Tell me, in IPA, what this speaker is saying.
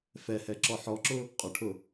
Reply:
fɛhɛǁɔ ħɔǁʊ | qʼʊʈʰʊ

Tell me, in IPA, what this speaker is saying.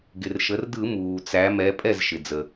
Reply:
ɡɪ˩rʃə˩˧rdɯ˧˩˧ muː˩t͡sæ˩˧mɛ˩˧ pʼɛ˥˩zʃɪ˩d͡zə˩

